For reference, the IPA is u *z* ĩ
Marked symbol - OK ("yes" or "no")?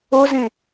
yes